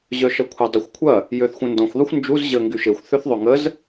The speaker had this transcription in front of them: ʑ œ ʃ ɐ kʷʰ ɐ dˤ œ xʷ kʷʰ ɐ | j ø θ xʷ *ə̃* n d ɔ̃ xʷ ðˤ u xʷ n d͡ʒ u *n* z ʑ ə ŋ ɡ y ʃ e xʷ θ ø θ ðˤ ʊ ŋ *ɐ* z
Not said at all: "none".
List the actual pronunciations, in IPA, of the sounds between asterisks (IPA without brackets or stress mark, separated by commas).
ə̃, none, ə